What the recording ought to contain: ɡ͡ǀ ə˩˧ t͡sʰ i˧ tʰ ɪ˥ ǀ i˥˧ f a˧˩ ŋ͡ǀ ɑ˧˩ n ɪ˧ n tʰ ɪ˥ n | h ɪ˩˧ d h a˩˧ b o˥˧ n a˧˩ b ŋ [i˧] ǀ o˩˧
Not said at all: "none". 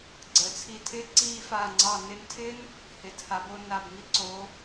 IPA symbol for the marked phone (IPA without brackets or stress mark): i˥